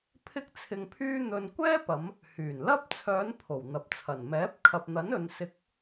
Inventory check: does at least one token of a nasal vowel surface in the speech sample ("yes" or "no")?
no